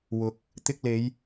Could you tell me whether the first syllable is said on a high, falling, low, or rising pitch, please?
low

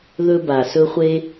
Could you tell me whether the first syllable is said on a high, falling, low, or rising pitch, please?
high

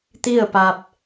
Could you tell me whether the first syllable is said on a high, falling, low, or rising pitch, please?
falling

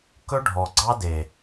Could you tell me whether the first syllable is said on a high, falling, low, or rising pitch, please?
high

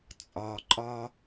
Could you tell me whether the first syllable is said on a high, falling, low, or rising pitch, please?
low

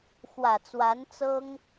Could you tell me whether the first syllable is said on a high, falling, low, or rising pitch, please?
low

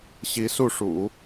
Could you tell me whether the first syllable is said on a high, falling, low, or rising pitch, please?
rising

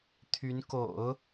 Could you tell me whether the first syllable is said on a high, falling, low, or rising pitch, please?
rising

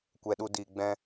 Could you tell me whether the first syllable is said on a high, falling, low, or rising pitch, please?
low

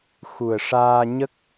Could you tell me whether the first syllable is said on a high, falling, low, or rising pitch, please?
low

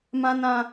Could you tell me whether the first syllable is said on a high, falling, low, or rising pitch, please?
high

